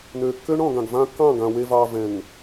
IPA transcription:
n øː˨ kː ø˦ ɳ ɔ̃˨ ɡ ã˨ ɡ v ã˦ kː ɑ̃˦˨ ɡ ã˨ w e˨ v ɑː˨ v ɛ̃˨ ŋ

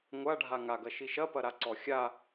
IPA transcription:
ŋʷ a ɖʱ a ŋ a ɡ ɐ ʃ i ʃ ɐ p ɐ ɾ a ǀ ɔ xʲ a

